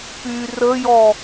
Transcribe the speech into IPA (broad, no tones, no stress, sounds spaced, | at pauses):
p y r ə j ɔ